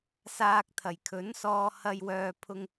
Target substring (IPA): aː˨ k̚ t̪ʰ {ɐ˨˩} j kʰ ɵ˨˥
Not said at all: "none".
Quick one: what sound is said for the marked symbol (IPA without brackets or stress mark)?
ɐ˨˩